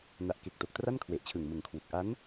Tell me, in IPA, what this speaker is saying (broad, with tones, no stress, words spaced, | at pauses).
na˨˩ʔke˨˩k̚ to˨˩k̚tra˥˩nkʰwe˨˩ʔ t͡ɕʰɯ˨˩ŋmɯ˨˩ŋkʰwu˨˩k̚ ʔa˦˥n